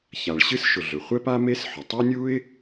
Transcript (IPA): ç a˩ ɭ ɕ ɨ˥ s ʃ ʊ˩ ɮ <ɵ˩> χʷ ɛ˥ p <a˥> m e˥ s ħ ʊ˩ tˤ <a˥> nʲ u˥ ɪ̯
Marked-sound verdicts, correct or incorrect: correct, correct, correct

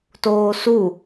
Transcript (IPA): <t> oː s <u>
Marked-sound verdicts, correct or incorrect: correct, correct

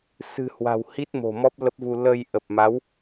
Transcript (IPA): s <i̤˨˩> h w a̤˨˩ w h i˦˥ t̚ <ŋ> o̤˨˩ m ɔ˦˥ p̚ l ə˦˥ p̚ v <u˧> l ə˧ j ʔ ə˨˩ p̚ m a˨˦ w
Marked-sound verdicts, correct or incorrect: incorrect: ɨ̤˨˩, incorrect: m, correct

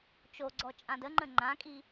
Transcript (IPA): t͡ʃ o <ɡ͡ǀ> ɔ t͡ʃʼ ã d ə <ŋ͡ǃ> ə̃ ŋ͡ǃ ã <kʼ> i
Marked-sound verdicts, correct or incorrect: correct, correct, correct

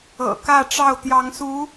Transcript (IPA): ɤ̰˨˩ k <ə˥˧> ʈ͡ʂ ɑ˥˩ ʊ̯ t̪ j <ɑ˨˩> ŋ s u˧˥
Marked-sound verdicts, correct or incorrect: incorrect: ä˥˧, incorrect: ɑ˧˥

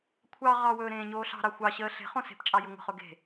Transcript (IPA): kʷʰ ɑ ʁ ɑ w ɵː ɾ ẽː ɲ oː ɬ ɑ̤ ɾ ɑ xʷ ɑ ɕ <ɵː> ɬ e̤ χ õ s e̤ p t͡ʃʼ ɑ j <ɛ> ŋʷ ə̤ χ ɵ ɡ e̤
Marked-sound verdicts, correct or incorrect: incorrect: əː, incorrect: ʏ

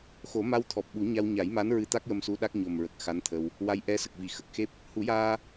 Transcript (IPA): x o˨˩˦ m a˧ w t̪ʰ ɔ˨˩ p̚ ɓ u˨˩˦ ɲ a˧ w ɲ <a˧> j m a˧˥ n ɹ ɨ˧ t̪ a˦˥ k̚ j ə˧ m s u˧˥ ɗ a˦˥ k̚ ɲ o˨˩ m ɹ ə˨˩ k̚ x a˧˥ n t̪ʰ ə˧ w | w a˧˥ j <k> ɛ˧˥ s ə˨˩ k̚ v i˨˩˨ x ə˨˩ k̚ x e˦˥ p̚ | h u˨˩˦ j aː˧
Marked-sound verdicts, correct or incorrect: incorrect: a˨˩˦, incorrect: ʔ

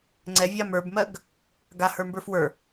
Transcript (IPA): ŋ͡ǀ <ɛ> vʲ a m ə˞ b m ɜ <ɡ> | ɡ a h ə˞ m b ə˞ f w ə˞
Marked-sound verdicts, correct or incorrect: correct, correct

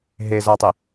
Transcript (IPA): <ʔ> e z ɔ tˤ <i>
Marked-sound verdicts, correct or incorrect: incorrect: ɦ, correct

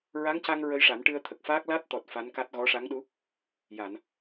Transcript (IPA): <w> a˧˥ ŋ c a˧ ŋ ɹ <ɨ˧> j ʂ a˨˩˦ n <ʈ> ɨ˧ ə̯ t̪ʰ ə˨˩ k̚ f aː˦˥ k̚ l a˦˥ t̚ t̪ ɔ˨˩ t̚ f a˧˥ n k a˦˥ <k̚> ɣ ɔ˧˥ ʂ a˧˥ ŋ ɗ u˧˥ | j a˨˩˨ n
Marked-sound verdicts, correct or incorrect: incorrect: ɹ, incorrect: ə˧, correct, incorrect: t̚

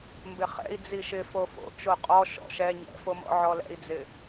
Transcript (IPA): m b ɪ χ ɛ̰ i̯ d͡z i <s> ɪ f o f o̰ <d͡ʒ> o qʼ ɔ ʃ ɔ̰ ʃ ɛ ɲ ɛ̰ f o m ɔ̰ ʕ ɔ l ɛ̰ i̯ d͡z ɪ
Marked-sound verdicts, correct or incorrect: incorrect: ʃ, incorrect: t͡ʃ

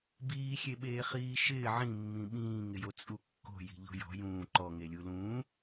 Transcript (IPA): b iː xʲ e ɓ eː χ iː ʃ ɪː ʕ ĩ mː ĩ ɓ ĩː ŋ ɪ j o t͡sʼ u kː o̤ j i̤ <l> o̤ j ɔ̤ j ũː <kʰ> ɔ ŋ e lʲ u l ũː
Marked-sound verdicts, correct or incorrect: incorrect: ʎ, incorrect: ǃ

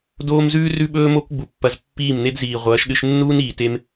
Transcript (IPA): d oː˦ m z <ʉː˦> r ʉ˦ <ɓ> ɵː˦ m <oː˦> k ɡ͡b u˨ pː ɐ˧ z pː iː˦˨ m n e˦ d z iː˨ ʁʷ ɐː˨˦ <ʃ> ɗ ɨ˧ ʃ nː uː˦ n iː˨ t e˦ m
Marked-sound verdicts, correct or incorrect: correct, correct, incorrect: o˦, correct

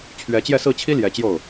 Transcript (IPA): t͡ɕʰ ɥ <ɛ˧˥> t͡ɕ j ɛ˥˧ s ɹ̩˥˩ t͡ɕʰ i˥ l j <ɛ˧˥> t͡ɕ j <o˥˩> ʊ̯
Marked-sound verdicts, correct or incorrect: correct, correct, correct

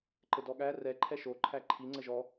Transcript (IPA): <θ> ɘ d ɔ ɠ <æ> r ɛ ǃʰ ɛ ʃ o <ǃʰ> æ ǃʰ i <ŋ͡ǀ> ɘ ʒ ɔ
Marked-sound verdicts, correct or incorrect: incorrect: ǃ, correct, correct, correct

